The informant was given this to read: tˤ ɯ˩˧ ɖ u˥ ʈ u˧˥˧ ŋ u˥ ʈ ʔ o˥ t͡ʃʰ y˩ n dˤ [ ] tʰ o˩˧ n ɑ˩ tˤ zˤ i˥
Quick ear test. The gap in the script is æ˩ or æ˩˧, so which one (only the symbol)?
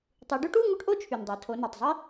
æ˩˧